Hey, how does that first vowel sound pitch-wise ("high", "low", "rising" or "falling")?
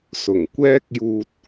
low